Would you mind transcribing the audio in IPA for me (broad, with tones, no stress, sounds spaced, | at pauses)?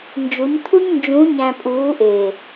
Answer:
n d͡ʒ u˨˦ ɲ t̪ʰ u˦ ɲ n d͡ʒ ũ˨˦ ɲ æ̃˨ pʼ uː˨˦ ʔ eː˨